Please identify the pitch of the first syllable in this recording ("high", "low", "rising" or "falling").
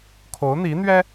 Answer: rising